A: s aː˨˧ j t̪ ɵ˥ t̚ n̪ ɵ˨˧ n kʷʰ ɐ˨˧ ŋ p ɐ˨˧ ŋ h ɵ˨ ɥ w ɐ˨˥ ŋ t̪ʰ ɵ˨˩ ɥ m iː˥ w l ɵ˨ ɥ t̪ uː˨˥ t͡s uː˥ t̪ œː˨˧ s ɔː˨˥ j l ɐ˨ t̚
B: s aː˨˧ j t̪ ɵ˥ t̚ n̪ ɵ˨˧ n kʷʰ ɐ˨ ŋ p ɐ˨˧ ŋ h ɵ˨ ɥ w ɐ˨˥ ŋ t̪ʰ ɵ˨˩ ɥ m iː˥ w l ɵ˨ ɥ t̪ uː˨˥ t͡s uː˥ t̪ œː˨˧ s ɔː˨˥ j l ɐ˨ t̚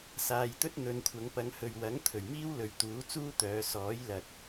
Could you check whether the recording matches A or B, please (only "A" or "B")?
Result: A